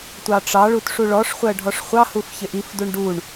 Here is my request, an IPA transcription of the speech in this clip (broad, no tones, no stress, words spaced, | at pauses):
tʷɑʈ͡ʂɑɭut ʂuɭɔʂχʷɜ ɖʱɔʂχʷɑhuf çɪʔifduɳ ɖuɳ